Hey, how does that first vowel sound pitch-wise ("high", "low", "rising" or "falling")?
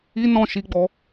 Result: high